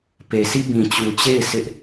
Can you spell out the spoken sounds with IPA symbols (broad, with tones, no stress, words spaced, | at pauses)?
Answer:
pe˨sʰi˦ bĩ˨t͡ɕu˨t͡ɕe˦˨ɪ̯ sʰɪ˦ʔ